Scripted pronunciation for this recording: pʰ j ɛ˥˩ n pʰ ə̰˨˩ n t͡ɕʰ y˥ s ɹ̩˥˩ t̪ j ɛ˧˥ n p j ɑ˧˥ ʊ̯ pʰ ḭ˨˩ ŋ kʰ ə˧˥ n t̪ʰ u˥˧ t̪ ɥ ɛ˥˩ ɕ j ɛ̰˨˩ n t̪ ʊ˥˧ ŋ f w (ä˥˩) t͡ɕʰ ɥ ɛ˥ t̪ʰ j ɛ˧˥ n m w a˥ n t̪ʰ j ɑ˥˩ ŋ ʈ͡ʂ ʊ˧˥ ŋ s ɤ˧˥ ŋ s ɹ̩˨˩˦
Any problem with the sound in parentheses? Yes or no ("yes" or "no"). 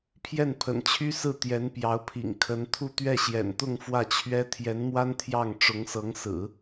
no